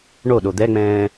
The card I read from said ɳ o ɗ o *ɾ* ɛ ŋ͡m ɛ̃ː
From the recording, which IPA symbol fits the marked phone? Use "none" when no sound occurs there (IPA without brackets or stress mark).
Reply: d̪